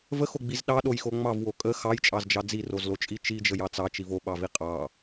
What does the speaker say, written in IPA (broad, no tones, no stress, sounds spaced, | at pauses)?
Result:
v ə x o ɡ͡b i z ɗ ɑ ɗ o j x o ŋ͡m ɑ v w o kʼ ə x ɑ j t͡ʃʼ ɑ z d͡ʒ ɑ d͡z i r o z l o t͡ʃʼ i t͡ʃ i d͡ʒ ə j ɑ t͡s ɑ t͡ʃ i v o ɓ ɑ v i qʼ ɑ